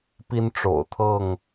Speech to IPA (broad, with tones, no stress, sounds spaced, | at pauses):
p i˦ n ʈ͡ʂ o̰˨˩ ʊ̯ t̪ʰ ɤ˥˨ ŋ